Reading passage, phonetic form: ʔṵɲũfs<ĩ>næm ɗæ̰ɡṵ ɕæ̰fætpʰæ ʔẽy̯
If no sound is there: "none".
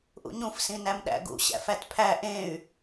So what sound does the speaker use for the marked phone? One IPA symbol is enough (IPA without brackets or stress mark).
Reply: ĩ